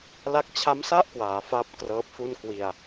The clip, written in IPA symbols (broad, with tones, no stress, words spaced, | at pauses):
la˦˥k̚ t͡ɕʰa˦˥msa˥˩ʔkwaː˩˦ faː˥˩p̚krɤː˦˥p̚fu˥˩n kwi˧a̯